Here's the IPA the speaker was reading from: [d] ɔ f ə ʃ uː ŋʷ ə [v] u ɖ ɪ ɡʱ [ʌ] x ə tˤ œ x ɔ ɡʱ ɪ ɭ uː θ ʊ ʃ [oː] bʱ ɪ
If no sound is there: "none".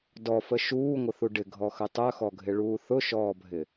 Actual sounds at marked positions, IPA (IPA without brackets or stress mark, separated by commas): d, θ, ɔ, ɔː